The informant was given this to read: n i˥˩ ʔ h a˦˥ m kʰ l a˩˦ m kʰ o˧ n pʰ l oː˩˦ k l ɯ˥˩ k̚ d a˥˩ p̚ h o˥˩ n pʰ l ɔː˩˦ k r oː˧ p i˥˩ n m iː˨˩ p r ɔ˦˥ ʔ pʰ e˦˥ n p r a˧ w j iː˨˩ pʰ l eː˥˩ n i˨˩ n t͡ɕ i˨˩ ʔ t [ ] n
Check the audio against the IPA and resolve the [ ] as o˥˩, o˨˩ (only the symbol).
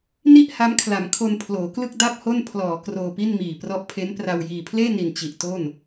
o˥˩